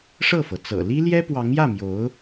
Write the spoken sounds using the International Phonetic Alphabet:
ʂ ɤ˥˩ f ɤ˩ t͡s ɤ̰˨˩ l i˥ l j ɛ˥ p w ɑ˧˥ ŋ j ä˥˩ m j o˧˥ ʊ̯

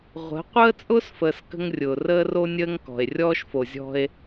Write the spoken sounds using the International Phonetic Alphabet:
ʁʷ ə̤˨˦ qʷ əː˦ t͡sʼ ʊː˦ s f əː˨ s k ə̤˦ ŋ rʲ ʊː˨ r əː˦ r o˦ nʲ əː˦ ŋ k ɔ̤˨ e̯ rʲ ɔː˦ ʃ f o˨ zʲ ɔ̤˦ e̯

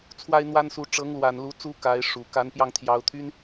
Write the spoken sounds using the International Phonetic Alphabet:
t͡sʰ w a˥ ɪ̯ n̪ w a˥ n s u˧˥ ʈ͡ʂ ɤ˧˥ ŋ l w a˨˩ n l u˧˥ t͡s u˥ k a˧˥ ɪ̯ ʂ u˨˩ k a˧˥ n p j ɑ˥˩ ŋ t̪ʰ j ɑ˧˥ ʊ̯ t̪ʰ y˥ n

